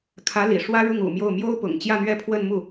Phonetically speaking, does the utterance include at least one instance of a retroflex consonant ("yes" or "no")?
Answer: yes